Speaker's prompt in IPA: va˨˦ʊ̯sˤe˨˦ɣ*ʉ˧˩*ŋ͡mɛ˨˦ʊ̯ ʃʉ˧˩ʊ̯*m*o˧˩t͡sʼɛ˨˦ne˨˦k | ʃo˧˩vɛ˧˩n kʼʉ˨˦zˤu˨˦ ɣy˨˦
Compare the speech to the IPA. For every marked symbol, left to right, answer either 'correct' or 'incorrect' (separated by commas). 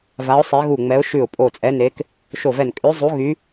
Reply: incorrect, incorrect